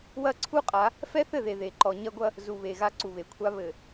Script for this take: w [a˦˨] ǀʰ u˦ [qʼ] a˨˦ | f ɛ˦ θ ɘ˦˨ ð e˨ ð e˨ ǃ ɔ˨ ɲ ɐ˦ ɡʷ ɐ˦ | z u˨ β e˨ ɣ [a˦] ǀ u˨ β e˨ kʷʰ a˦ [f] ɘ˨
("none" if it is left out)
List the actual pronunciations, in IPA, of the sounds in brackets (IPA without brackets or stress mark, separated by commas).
ɐ˦˨, qʼ, a˦, β